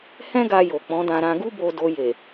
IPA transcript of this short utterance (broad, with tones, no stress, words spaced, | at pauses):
hɛ̃˦ɡa˧jo˨ k͡pɔ̃˨˦dã˧ɾã˧ ɡu˦ bo˧do˧ je˨